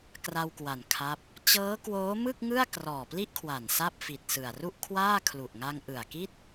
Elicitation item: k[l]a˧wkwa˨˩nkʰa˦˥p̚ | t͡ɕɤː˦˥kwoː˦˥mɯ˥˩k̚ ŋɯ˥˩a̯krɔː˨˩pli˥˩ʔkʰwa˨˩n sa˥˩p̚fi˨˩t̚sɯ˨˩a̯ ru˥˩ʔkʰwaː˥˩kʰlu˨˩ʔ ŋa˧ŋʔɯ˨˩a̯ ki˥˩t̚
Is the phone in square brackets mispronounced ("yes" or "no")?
yes